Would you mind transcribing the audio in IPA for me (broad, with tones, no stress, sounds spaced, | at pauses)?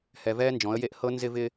h ɛ˨ v ɛː˦ n d͡ʒ ɔ̃˨˦ ə̯ j e˦ ʔ h ɤ˦ n z ɪ˦ v ɪ˦